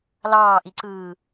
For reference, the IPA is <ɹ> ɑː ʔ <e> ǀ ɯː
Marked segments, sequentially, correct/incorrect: incorrect: l, incorrect: i

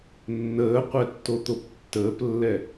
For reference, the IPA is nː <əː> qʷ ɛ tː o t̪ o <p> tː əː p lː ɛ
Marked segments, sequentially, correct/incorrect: correct, correct

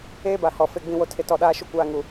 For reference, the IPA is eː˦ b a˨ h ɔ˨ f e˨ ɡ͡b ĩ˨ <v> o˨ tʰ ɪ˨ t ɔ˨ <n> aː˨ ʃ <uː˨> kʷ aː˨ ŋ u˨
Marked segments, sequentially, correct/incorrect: incorrect: w, incorrect: ɗ, incorrect: u˨

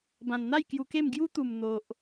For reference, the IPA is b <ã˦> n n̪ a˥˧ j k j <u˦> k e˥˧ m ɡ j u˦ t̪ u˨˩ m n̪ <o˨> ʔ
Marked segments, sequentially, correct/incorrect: incorrect: ã˨˩, incorrect: u˧, correct

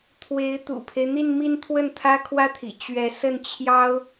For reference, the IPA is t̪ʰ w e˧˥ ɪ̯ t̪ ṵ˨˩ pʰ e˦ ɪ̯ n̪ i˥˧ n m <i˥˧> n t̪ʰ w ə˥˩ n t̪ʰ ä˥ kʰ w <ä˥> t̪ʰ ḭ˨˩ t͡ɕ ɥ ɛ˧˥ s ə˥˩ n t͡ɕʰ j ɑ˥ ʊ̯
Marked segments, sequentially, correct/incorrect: correct, correct

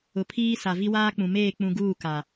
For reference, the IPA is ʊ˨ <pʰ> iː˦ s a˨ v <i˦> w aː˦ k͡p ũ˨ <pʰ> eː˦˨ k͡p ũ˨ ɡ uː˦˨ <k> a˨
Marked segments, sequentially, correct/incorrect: correct, correct, incorrect: m, correct

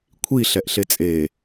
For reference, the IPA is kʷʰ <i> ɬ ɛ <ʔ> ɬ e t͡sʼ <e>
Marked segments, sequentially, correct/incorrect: correct, correct, correct

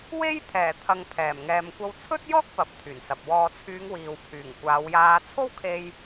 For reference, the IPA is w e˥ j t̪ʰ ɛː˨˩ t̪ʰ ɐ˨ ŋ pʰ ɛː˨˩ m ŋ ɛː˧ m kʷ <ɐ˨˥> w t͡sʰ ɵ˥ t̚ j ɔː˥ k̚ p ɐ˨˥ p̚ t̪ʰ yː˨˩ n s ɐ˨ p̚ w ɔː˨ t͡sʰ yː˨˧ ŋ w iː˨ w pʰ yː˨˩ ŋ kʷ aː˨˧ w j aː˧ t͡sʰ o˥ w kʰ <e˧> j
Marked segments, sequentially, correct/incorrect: incorrect: ɐ˧, correct

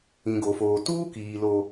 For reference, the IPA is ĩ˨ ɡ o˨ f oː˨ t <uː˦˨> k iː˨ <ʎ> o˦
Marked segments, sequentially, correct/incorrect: incorrect: uː˦, incorrect: l

